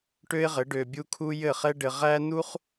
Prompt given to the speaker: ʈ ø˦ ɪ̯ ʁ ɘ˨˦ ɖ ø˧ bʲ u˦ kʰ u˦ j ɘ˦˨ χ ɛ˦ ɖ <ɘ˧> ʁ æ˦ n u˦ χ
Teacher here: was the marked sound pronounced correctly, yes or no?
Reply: yes